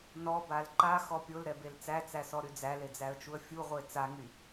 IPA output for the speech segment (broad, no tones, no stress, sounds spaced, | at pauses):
n ɔ b a l ǃ a x ɔ pʲ o l ɾ ɛ b e l t͡s æ t͡s æ s ɔ ɾ y d͡z æ l e d͡z æ ə̯ t͡ʃ u ə̯ fʲ u ʁʷ e t͡s a ŋ y